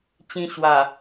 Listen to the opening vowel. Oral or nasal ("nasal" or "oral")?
nasal